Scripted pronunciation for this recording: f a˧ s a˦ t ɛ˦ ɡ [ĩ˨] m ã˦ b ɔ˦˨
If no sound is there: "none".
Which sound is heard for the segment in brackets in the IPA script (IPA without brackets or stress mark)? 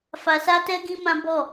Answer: ĩ˦